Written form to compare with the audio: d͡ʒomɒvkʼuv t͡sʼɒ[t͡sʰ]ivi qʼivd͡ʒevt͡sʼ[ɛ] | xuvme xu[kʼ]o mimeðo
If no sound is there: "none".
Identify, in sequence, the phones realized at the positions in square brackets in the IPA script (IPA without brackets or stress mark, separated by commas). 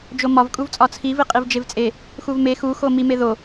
t͡sʰ, e, x